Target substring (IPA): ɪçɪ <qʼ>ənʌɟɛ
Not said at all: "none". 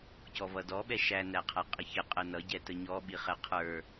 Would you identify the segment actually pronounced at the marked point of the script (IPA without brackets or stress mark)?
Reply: qʼ